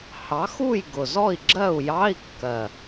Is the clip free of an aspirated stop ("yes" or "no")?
yes